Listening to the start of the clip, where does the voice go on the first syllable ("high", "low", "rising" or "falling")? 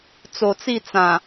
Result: low